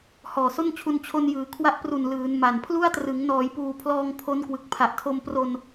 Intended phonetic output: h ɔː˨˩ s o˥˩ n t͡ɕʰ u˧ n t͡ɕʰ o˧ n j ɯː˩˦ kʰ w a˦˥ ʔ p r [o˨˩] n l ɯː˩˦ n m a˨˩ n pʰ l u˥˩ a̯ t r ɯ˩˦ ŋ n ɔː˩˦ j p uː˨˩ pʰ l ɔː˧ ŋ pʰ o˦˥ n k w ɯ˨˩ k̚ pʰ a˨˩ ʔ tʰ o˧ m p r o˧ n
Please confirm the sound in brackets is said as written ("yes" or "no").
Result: no